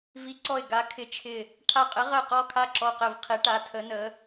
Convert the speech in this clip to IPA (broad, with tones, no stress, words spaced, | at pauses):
vi˧˥ǀɔ˦˨ɪ̯ ɡa˧˥ kʰɪ˧˥t͡ʃʰɪ˦˨ | ʈʰa˦˨qʼɪ˧˥ʁə˦˨ɪ̯ qɔ˦˨kʰa˦˨ ǁɔ˦˨qɪ˦˨vqʰi˧˥ʈa˧˥ tʰə˧˥nə˧˥